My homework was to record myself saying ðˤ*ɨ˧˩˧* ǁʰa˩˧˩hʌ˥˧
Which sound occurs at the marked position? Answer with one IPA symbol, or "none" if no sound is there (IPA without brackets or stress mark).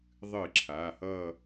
ɨ˧˩˧